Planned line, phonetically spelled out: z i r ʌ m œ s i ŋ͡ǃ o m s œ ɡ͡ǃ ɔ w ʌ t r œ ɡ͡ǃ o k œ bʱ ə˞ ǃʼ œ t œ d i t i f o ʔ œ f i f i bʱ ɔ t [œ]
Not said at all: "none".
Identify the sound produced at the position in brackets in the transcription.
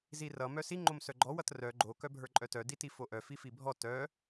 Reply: œ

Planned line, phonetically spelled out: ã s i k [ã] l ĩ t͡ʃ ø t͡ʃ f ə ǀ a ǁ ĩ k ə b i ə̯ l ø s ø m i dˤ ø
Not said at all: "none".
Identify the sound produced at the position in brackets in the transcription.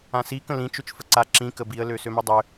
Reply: ə̃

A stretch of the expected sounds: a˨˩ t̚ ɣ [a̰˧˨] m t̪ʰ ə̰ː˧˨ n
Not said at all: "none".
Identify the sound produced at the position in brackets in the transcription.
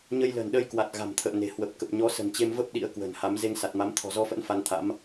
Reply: a̤˨˩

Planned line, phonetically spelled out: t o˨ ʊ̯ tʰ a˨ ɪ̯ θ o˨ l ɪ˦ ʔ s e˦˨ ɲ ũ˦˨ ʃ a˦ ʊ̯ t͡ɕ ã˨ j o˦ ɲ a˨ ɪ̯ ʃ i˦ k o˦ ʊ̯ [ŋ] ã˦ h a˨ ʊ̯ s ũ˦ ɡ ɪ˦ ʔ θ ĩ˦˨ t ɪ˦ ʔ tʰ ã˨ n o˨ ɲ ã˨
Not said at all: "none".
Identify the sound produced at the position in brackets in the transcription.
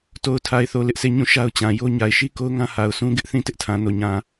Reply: ŋ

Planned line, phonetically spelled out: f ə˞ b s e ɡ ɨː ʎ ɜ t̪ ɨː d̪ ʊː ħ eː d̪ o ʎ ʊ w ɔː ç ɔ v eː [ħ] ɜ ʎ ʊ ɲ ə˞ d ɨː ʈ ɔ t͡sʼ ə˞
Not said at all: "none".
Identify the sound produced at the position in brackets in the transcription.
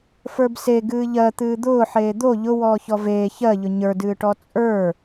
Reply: ç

